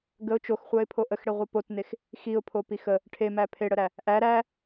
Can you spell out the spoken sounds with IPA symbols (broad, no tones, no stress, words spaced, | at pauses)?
ɡəʊ̯ t͡ʃoxχʷæɪ̯pʰo ʔəxɽeʁʷə potnex | xiʊ̯pʰopix ə | ʈʰemæ pʰeɽəɾæ | ʔæ ɾæ